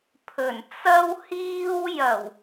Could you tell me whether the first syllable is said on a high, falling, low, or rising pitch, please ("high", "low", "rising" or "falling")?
low